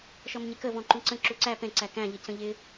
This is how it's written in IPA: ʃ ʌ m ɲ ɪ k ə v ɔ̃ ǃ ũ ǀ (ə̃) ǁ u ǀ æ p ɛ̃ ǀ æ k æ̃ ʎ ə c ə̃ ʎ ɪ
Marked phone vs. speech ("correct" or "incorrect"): correct